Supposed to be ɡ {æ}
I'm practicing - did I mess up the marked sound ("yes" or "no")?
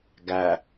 no